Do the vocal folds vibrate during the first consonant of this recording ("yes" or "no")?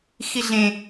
no